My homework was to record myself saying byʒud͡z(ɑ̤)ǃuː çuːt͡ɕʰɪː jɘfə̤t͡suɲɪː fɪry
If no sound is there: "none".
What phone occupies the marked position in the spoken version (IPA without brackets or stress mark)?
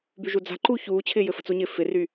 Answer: a̤